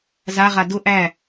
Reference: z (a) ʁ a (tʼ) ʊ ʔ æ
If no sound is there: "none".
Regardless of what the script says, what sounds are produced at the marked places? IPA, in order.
a, d

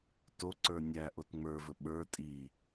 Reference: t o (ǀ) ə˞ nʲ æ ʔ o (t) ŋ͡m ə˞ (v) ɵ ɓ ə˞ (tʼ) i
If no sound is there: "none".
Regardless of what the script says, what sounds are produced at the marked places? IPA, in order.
ǀ, t, v, tʼ

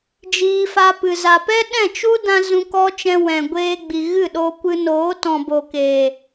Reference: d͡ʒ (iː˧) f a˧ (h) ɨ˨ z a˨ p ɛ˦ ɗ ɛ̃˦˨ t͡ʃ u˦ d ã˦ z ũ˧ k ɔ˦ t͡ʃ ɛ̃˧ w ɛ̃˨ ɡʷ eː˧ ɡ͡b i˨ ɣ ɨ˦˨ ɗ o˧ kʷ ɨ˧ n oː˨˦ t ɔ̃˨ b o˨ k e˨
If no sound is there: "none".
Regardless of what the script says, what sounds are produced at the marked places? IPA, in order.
iː˧, p

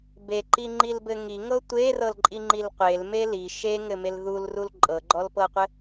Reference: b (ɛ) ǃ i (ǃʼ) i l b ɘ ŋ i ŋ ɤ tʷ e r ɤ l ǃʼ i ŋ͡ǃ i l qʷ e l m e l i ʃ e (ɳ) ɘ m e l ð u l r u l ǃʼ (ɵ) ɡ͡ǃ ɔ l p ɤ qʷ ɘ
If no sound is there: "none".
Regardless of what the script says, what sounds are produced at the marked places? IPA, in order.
e, ŋ͡ǃ, ŋ, ɤ

